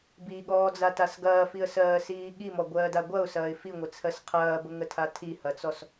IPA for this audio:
b i ɠ ɔː d͡z a t a s ɡ ɐː f i ə̯ s ɜː s iː ɠ i m ɔ ɡʷ ɜː d a ɡʷ ɐ ʊ̯ s ɐː ɪ̯ f i ŋʷ ə t͡sʰ ɜ s qʰ ɐː b ə ŋ ə tʰ a tʰ i h ɐ t͡s ɔ s

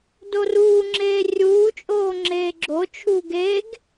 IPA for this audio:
d o r uː ŋ͡ǁ eː rʲ uː t͡ʃʼ oː ŋ͡ǁ eː ɡ͡ǁ o t͡ʃʰ uː ɡ e ɡ

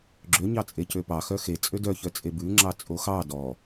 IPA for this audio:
ɡ͡ǁ ø ɲ ɑ t͡sʼ e c ø p ɑ x œ x e t͡sʼ ø d œ ç œ t͡sʼ e b ʉ ŋ͡ǁ ɑ t͡sʼ o x ɑ d ɔ

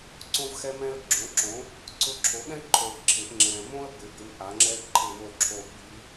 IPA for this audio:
ǀ õ˥ v x ɛ˥ m ɛ̃˥ ə̯ ɡ͡ǁ õ˩˥ ǁ õ˩˥ | ǀ ʊ˧˥ ǁʰ o˩˥ ɠ ɛ̃˥ ǃʰ o˨ ɪ̯ ǁʰ ɪ˩˥ ʔ ŋ͡ǁ ɛ̃˨ m õ˥ ə̯ b ɪ˩˥ b ɪ˧˥ m ʔ a˩˥ ŋ͡ǁ ɛ˥ ǃʰ ɪ˦˨ w o˦˨ ǁʰ o˦˨ ɓ i˧˥

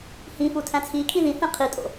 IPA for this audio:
h ĩ f u tʰ æ̃ t͡sʰ i kʰ ĩ ð ĩ θ ẽ qʰ i tʼ o̰

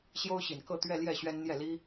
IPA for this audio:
ɕ j o˥ ʊ̯ ɕ i˨˩ n k ɤ˥˧ t̪ ɥ ɛ˥˧ l j ɛ˥˩ ɕ ɥ ɛ˥ n n̪ j ɛ˥˩ l i˥

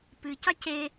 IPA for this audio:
p ɨ c ɑ c e

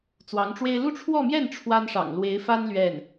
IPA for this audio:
t͡s w ɑ˧˥ ŋ ʈ͡ʂ w e˥ ɪ̯ l u˥˧ ʈ͡ʂʰ w ɔ˥˧ m j ɛ˥˩ n ʈ͡ʂʰ w a˥ n ʂ ɑ̰˨˩ ŋ l w e˧˥ ɪ̯ f a˥ n l ɥ ɛ˥˩ n

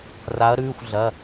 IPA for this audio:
r a˧˥ ɐ̯ ɾ ʉː˧˥˧ xʷ ɮ ɐ˧˥˧

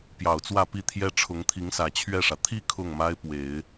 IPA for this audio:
p j ɑ˨˩ ʊ̯ t͡s w ä˥˧ p i˥˩ t̪ʰ j ɛ˥ ʈ͡ʂʰ ʊ˧˥ ŋ t̪ʰ i˧˥ ŋ s ä˨˩ t͡ɕʰ ɥ ɛ˥˩ ʂ ä˩ t̪ʰ i˥˧ kʰ ʊ˥˩ ŋ m a˥ ɪ̯ p w e˨˩˦ ɪ̯

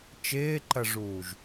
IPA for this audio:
t͡ʃ ɪː ǃ ɐ ʐ uː ʒ

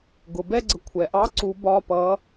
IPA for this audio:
ɡ ʊ˩ b ɛ˥ ɡ͡ǀ ə˩ kʷʰ ɛ˩ ʔ ɑ˧˥ ǀ u˩˧ b ɒ˩˧˩ p ʌ˩˧

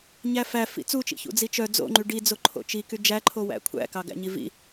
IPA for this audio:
ɲ æ f æ f ḭ t͡s u t͡ʃ ḭ ç ṵ d͡z i t͡ʃ œ d͡z o̰ ŋ͡ǃ y ɖ i d͡z o ǃʰ o̰ t͡ʃ i k y d͡ʒ æ ǃʰ o w æ̰ kʷʰ æ̰ k ɑ ɡ æ̰ ɲ i v ḭ

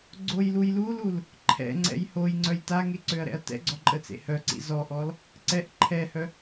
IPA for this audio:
ɡ͡ǀ o j l u j l u l u l | ǃʰ ɛ̰ ŋ͡ǀ ɛ̰ j h o j ŋ͡ǀ œ j t a ŋ e ǀ ø ɐ̯ ɾ ɛ̰ ɐ̯ t ɛ̰ ɡ͡ǀ ɔ ǃʼ ə t͡s ḛ h œ ǀ ḭ z ɔ ʔ ɔ l | ǀ ɛ ʔ ǃʰ ɛ h œ

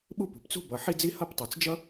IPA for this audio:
ɓ u˥ p ṳ˩ p t͡s ṳ˥ b ʌ˩ ħ i˥ d͡z i˥ h ʌ˥ p tˤ i˩ t͡s d͡ʒ ʌ˥

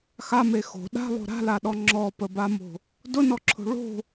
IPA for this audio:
x a m e x o̤ ɗ a̤ lˠ o̤ ɾ a̤ l a ɗ ɔ ŋ͡ǁ ɔ p ə b a m o̤ | d ʊ n ɔ ǁʰ o̤ ɭ o̤

